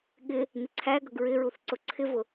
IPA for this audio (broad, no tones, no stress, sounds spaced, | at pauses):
ɠ ɪ | n ɪ ǀʰ æ ɡ ʌ ɡ ɹ ɪ ɹ u θ ǀ ʊ ǀʰ ɪ v ʊ